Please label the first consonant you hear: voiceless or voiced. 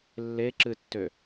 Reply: voiced